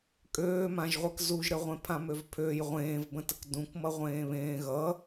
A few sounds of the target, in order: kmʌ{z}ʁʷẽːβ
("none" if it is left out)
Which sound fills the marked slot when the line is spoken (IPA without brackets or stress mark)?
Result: none